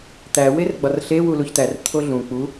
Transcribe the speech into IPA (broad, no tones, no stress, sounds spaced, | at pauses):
t̪ æ w e r ɡ͡b ɒ r ɬ e w u l u ç t̪ æ r t̪ʰ o ɮ ũ k͡p u